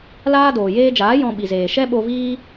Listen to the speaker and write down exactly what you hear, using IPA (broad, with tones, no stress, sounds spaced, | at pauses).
l aː˦ d oː˨ j eː˧ d͡ʒ aː˨˦ j ɔ̃˧ ɓ i˨ z eː˨ ʃ ɛ˦ ɓ o˧ v iː˦